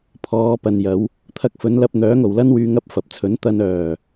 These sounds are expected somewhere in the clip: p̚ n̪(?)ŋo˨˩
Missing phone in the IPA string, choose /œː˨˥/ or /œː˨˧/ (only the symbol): œː˨˥